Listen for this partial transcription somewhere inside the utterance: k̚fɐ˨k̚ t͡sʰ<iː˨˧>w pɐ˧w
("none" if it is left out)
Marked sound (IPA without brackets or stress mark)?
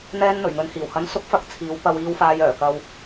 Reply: iː˨˧